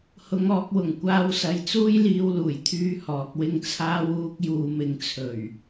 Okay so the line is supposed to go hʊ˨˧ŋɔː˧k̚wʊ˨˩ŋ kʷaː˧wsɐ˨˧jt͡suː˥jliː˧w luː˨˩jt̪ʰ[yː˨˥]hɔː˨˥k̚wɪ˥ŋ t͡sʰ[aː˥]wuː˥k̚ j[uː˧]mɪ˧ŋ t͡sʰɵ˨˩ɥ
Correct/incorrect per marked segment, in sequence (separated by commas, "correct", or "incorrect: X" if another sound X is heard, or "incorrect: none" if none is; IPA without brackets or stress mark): incorrect: yː˥, correct, correct